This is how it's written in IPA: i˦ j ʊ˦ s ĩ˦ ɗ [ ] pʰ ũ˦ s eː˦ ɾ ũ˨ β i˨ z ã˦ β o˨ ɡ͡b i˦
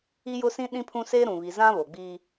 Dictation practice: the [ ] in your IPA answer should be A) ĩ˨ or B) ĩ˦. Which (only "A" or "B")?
B